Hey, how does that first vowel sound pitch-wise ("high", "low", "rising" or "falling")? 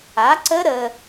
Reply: rising